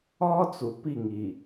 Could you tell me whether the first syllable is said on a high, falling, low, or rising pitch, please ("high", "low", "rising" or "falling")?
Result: high